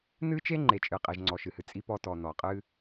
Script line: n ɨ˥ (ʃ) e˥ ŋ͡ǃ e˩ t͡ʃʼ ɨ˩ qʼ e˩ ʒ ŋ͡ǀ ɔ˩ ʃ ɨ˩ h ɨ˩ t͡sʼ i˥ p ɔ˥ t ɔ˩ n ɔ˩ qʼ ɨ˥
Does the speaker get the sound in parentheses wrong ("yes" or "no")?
yes